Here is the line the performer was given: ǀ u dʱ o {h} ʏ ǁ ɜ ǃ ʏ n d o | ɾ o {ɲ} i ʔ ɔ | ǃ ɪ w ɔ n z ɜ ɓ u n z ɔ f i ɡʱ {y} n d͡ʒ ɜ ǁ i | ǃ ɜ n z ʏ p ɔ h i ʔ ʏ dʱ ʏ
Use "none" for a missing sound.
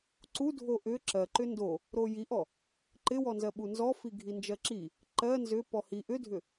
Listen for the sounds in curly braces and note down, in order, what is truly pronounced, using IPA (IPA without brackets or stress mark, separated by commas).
ʔ, j, i